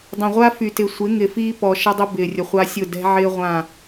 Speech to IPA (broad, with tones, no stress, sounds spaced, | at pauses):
dˤ ɐ̃˨ ʁʷ a˦ f y˨ t ɪ˨ sʷ ɪ˨˦ ŋ ɪ˨ f iː˦ p ɔ˨ ʃ ɐ˦ dˤ ʊ˦ b ɪː˨ rʲ ə˨ χʷ a˦ sʲ ʊ˦˨ d ɛ̤˦ ʕ ɪː˦ ʁʷ ã˦˨